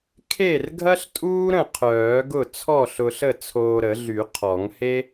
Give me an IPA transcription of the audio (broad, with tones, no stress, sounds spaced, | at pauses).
kʰ e˥˩ r ɡʱ ɐ˥ ɬ tʼ uː˥ ɾ ə̃˥˩ qʰ œː˨˩˦ ɡ ʊ˥˩ t͡sʰ ɔ˥˩ ɬ ʊ˧ ɬ ə˥˩ t͡sʰ oː˧ ɾ ə˨˩˦ ɮ y˨˩˦ qʰ ɔ˨˩˦ ŋ h e˥